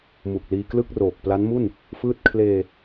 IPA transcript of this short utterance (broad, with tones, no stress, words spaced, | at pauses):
mu˨˩k̚liː˧klɯ˥˩k̚roː˨˩k̚ pla˦˥nmu˥˩n | fɯː˥˩t̚ kʰleː˧